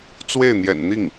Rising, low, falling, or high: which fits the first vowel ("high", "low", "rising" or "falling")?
falling